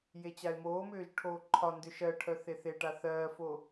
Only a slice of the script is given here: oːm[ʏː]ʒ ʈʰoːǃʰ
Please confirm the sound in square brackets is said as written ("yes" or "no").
yes